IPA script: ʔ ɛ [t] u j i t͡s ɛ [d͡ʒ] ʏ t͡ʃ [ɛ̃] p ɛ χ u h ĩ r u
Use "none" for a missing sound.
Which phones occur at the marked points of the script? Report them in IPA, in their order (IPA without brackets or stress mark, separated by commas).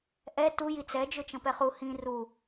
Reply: t, d͡ʒ, ə̃